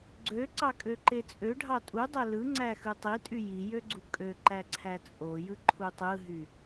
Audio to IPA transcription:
ɡ͡ǀ ø ǀ ɑ kʼ ø ǃ e t͡sʼ ø ɖʱ ɑ tʼ u dˤ æ l ɯ ŋ͡ǀ æ x ɯ tˤ i tʼ y j i j ø ɡ͡ǀ u kʼ ø ǃ æ ǀʰ æ t͡sʼ o j ɯ ǃʰ u tˤ ɯ ɦ y

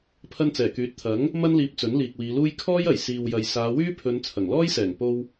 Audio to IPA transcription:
pʰ ɐ˧ n t͡s ɛː˨˩ k yː˨˥ t̚ t̪ʰ ɐ˨˥ ŋ | m ɐ˥ n l iː˧ p̚ t͡s ɵ˨˥ n l iː˨ k̚ w iː˨˧ l uː˥ j kʰ ɔː˥ j ɐ˨˩ j s iː˨ w j ɐ˨ j s aː˨˧ w yː˥ pʰ ɵ˨˧ n t͡sʰ ɐ˨˩ ŋ l ɔː˥ j s ɛː˨˩ ŋ p o˧ w

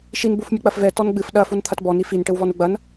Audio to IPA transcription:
ʃ i n b u f mʲ u k͡p ɐ f v ɛ t ɔ n ɡ͡b ɨ f ɗ ɐ f u n t̪ʰ ɐ t b ɔ n i f i n ʈ ɘ w v ɔ n u ɡ͡b ɐ n

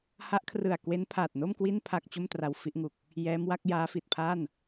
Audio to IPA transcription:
h a˦˥ ʔ kʰ r ɯ˨˩ a̯ k w e˦˥ n pʰ aː˨˩ t̚ n o˥˩ m k w i˥˩ n pʰ a˥˩ k̚ t͡ɕ o˥˩ m t r a˧ w f i˥˩ ʔ ŋ u˨˩ k̚ | j ɛː˦˥ m w a˦˥ k̚ j aː˦˥ f i˨˩ t̚ pʰ a˥˩ n

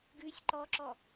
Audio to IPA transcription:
ɡ ʉ sʲ ǃ ɔ ǁ ɔ

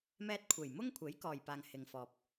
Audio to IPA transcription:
m ɛː˧ t̚ kʷʰ e˨˩ j m ʊ˥ ŋ kʷʰ e˨˥ j k ɔː˨ j p aː˨ ŋ h ɪ˨ ŋ f ɔː˨ p̚

